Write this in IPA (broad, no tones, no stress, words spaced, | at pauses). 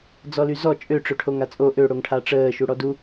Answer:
d͡zɔlyzɔ t͡ʃʼøʈ͡ʂøʈʰoŋ at͡sʼo ʔø ɽoŋʈʰaʈ͡ʂəː ʃuɽɔdu